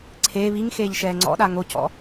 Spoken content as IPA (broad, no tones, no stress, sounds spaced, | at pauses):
ǀʰ eː β i ŋ x eː ʎ ʃ ɛː ŋ͡ǀ ɔ̰ ɗ a ŋ o c ɔ̰